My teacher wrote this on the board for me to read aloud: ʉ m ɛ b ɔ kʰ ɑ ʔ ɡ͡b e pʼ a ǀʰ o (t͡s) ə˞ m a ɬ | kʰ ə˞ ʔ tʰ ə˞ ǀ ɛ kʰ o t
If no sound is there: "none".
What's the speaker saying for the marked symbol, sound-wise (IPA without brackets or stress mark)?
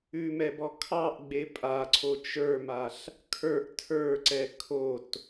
t͡ʃ